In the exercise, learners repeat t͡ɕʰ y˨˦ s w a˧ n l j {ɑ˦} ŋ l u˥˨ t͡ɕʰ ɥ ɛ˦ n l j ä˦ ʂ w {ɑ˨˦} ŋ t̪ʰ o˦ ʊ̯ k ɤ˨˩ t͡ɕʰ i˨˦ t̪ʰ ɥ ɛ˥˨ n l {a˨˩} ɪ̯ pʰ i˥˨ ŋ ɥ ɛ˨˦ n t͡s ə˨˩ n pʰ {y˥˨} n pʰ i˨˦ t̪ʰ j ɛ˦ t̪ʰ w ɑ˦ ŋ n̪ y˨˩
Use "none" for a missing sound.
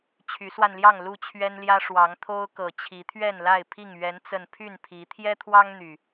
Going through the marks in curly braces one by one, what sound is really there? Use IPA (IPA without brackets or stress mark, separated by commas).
ɑ˥˨, ɑ˨˦, a˥˨, y˥˨